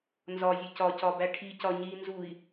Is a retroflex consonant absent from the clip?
no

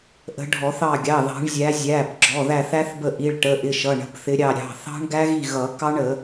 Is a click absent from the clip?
no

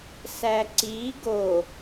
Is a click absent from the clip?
no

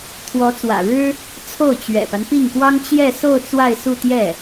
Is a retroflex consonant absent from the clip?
no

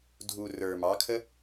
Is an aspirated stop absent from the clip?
no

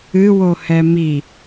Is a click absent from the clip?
yes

